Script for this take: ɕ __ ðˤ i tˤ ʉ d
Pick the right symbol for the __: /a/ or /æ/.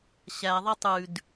æ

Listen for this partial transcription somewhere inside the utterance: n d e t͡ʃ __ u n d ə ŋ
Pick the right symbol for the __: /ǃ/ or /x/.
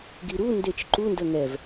ǃ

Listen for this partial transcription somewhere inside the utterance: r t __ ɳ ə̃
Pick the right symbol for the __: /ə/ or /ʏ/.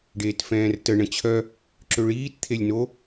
ə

